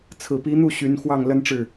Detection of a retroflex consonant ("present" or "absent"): present